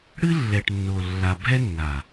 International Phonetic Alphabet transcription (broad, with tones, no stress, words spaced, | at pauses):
ɽɨ˦lːɛ˨ʈnːo˨ lːa˨bʱɛ˦ nːa˨